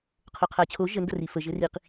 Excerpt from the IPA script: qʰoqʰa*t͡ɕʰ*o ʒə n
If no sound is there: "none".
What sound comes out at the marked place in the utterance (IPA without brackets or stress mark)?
t͡ɕʰ